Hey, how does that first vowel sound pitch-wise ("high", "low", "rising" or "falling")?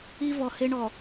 high